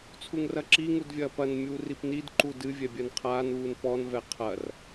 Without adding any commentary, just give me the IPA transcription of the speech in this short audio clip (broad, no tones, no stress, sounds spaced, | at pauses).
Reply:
t͡sʰ u ŋ r ɐ ǁ i ŋ u d vʲ ɐː p ɐ n mʲ uː r i p n i d ǃ u d ɨ vʲ ɛ bʲ ɜ n qʰ aː n uː n p ɔ n v ɛ qʰ ɐ r